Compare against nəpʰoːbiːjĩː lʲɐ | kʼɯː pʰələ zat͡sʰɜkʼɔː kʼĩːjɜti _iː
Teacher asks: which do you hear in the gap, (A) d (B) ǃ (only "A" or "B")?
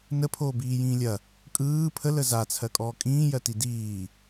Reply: A